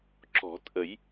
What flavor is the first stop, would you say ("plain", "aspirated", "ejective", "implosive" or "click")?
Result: click